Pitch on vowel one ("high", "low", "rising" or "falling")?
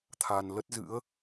low